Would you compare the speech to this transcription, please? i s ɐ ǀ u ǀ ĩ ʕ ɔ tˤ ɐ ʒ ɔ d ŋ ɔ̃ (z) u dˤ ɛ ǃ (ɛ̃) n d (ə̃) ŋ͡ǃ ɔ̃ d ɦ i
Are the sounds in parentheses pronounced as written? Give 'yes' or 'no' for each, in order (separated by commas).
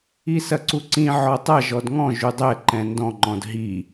no, yes, no